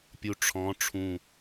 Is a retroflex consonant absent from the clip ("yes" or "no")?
no